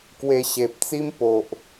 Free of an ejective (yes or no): yes